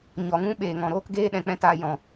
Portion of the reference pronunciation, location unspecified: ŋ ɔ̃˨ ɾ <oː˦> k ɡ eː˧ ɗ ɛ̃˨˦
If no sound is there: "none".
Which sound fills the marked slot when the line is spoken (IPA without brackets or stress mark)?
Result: oː˧